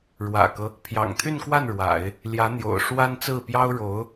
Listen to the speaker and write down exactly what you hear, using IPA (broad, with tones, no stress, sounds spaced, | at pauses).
ɻ w ä̰˨˩ k ɤ˦ | pʰ j ɑ̰˨˩ ŋ t̪ʰ y˥˧ n k w a˥˩ n ɻ w a̰˨˩˦ ɪ̯ | l j ä˧˥ n̪ j o̰˨˩ ʊ̯ ʂ w a˥ n t͡s ɹ̩˥˩ p j ɑ˥ ʊ̯ ɻ o˧˥ ʊ̯